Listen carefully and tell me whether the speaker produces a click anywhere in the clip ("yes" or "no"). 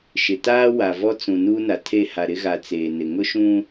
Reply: no